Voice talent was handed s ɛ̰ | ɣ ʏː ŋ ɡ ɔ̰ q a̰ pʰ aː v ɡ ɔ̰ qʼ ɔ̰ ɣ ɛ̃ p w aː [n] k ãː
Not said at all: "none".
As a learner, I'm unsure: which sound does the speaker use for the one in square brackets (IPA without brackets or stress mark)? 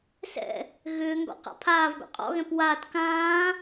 t